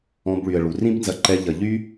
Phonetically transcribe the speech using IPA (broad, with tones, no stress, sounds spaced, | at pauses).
ɔ̃˧ b ɭ y˨ ə̯ ɭ u˨ r ĩ˦ b n z ɐ˧ ǃ ɛ˧ ʎ ɐ˨ ʎ y˦